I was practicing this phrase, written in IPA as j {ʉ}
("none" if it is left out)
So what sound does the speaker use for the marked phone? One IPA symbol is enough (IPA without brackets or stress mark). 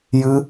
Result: ɨ